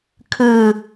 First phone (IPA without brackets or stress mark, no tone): kʰ